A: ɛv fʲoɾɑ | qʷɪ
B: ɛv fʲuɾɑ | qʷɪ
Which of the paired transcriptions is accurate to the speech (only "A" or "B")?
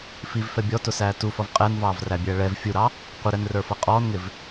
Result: B